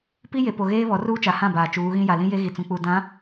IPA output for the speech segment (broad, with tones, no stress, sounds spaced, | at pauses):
p i˦ j e˨ p o˨ ɣ eː˦ β ɔ˨˦ r uː˦ t͡ʃ a˨ h ã˦˨ b aː˨ t͡ʃ uː˨˦ ɣ ĩ˦ j a˨ l ĩ˦ j e˦ ɣ i˨ t͡s ũ˨ k͡p u˨ d ã˨˦